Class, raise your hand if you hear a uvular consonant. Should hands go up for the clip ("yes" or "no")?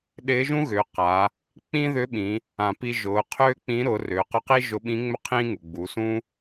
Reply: yes